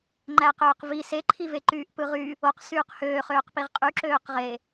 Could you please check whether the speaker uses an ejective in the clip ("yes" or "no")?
yes